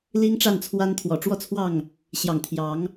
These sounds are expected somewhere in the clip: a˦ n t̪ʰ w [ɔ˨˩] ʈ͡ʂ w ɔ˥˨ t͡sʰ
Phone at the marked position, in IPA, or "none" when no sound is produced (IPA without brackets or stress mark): ɔ˨˩